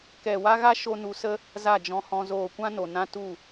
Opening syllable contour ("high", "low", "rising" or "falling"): low